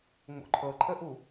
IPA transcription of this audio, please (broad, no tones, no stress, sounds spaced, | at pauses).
ŋ͡m o̰ ǃʰ ɤ ǃʰ ə ʔ u